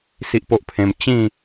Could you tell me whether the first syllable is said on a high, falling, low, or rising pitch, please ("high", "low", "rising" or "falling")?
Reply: high